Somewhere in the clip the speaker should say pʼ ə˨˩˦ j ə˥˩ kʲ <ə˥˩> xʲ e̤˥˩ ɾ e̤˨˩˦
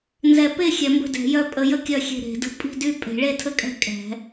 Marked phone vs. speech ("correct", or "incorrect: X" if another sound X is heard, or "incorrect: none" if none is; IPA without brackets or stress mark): incorrect: œ˥˩